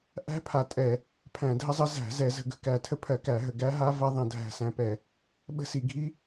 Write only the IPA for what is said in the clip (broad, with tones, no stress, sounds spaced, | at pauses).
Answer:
ʔ æ̤˦˥ pʰ a˨˩ tʼ ɛ˧˩˧ | pʰ æ̃˧˩˧ dʱ ə˦˥ zˤ ə˦˥ z æ̤˧˩˧ z ɛ˧˩˧ z ə̤˧˩˧ ɡ ə̤˨˩ k æ˨˩ tʰ ə˦˥ pʰ ɜ˧˩˧ k æ˧˩˧ ɦ ə˨˩ ɡ æ˦˥ ɦ a˦˥ v ɐ˦˥ ðˤ ɐ̃˧˩˧ dʱ æ̤˨˩ s æ̃˨˩ p ɛ˧˩˧ | ɓ ə̤˦˥ s i˧˩˧ ɡʱ i˦˥